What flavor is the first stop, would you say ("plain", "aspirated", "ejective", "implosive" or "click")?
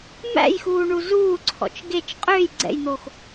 click